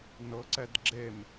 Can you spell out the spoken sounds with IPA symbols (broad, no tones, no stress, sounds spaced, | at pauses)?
n ɤ ǀ ɛ d ɡ͡ǁ e m